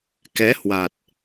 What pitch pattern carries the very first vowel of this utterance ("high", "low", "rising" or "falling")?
rising